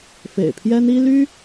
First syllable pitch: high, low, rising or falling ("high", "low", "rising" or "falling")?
low